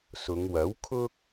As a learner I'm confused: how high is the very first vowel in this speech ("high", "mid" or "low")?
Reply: high